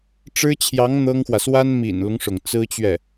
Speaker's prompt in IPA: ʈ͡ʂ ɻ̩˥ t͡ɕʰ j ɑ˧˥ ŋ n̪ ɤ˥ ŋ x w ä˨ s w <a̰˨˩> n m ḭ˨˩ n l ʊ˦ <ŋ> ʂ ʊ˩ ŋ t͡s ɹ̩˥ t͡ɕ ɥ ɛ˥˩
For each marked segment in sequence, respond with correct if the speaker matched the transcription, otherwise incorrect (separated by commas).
incorrect, correct